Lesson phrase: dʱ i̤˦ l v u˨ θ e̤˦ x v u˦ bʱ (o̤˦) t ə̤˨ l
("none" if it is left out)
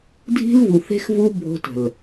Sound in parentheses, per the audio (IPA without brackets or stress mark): o̤˦